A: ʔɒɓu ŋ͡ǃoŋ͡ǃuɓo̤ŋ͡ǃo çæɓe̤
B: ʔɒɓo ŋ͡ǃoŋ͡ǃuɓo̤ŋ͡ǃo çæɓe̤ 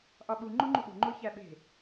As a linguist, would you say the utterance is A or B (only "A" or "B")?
A